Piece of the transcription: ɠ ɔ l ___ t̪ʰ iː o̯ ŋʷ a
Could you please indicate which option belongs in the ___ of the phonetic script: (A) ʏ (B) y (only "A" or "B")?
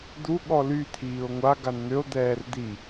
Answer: B